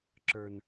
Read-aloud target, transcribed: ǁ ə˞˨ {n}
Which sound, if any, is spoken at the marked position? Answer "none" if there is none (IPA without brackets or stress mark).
n